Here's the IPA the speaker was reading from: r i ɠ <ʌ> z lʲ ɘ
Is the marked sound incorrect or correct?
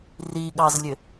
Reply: incorrect